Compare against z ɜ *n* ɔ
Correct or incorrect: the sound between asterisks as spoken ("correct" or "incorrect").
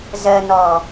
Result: correct